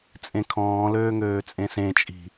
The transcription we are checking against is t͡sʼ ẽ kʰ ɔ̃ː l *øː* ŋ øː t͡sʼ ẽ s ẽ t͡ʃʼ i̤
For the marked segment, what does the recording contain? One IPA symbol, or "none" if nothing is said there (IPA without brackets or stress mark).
øː